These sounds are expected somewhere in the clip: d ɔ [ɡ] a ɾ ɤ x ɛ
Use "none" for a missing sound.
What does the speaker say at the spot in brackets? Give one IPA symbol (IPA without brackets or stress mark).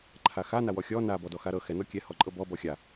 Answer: x